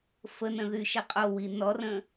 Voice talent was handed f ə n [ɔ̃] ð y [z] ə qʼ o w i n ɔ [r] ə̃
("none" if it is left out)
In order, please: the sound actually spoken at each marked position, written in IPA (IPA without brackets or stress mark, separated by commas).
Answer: ə̃, ʃ, r